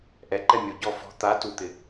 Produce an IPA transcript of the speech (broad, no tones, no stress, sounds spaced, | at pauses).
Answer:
ʔ ɛ ǃ ɛ mʲ o ɟ ɔ f ɔ̤ t̪ a t u t̪ ɪ